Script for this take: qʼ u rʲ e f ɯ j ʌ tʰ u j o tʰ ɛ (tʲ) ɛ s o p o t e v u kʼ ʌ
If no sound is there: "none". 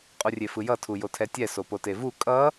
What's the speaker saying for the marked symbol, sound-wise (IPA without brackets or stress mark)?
tʲ